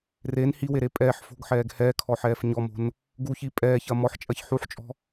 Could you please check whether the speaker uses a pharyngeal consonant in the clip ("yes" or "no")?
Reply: yes